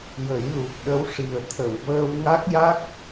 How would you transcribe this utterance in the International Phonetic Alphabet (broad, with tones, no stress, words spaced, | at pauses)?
jə˨˩˦jlu˨˩k̚ɗə˧˥wʂi˨˩ə̯ t̪ʰə˨˩˨wvəː˧wŋa˦˥k̚ja˦˥k̚